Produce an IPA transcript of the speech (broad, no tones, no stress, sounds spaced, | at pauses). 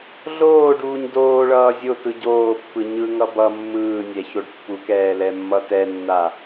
ɮ oː ɖ uː ɲ d oː ɭ ʌː zʲ o t ɯ ɟ oː pː ɯ ɲ ɯ ŋ ʌ b ʌ mː ɯː nʲ ɛ ç o ɖ pː u k ɛː l ɛ mː ʌ t ɛ nː a